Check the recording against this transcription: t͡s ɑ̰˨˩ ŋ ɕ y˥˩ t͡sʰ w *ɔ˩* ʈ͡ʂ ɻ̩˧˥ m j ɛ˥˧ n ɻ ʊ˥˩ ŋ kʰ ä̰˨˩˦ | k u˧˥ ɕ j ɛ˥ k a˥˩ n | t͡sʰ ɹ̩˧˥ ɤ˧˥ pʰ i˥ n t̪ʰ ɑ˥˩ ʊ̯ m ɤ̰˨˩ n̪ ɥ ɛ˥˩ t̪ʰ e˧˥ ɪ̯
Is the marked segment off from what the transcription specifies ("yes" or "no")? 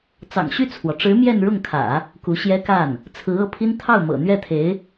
no